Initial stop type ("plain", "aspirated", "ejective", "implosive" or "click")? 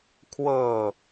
aspirated